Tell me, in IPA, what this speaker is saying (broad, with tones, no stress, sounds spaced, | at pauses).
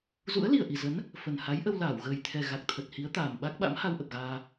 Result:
z ṵ˧˥ ə̯ l i˨˩ ə̯ ʔ i˨˩ z ə˨˦ n | f ə˨˩ n h a˨˦ j ʔ ə˧ w l aː˧˩ w ɣ əː˨˩ j t̪ʰ ɛ˨˩ ɣ a˨˩ k̚ t̪ʰ ə˨˩ t̚ h i˨˦ ə̯ t̪ aː˨˩ m ɓ a˦˥ k̚ ɓ a̰˧˥ m h a˧ w ʔ ə˨˩ p̚ ɣ aː˧